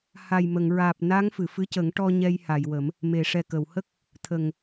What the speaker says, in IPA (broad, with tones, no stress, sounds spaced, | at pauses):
h a˨˩ j m ə˨˩˨ ŋ ɹ aː˨˩ p̚ n a˧˥ ŋ f ɨ˨˩˨ f ɨ˧˥ c ə˨˩˦ ŋ ʈ ɔ˧ ɲ ɛ˧ j h a˨˩˨ j w ə˨˩˦ m | m e˨˩˨ ʂ ɛ˨˩ k ə˨˩˨ w h ə˦˥ k̚ | t̪ʰ ə˨˩ ŋ